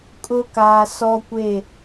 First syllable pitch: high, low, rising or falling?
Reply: low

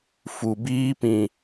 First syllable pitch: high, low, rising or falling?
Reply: low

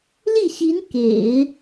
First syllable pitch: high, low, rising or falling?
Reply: falling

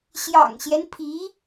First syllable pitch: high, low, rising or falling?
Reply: low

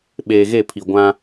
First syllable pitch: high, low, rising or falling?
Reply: low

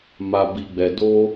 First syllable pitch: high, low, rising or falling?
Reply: low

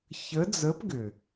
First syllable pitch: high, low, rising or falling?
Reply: rising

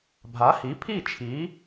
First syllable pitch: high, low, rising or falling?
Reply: rising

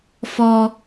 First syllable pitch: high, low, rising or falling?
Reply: high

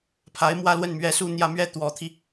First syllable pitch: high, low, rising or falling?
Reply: rising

